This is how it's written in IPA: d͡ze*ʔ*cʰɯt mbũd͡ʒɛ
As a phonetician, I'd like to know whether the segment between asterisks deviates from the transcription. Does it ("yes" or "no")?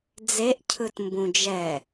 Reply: no